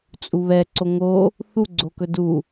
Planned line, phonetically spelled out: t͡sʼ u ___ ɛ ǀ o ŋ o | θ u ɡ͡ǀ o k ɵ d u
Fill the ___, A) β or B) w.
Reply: A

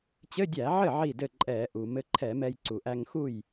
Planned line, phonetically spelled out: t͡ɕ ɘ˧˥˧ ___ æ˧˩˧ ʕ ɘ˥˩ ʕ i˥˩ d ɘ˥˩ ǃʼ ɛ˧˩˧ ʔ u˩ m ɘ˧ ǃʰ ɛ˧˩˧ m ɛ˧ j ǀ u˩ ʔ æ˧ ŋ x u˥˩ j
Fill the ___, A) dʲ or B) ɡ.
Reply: A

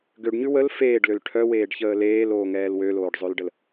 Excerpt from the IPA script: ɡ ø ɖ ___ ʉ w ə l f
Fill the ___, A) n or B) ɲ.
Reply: B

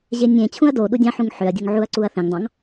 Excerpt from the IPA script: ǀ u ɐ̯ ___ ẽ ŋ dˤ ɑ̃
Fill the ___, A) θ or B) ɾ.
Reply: A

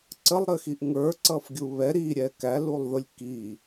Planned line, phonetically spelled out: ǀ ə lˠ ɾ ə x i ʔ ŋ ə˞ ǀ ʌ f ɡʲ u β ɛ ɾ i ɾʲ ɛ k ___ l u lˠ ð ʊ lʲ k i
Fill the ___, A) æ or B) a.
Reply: A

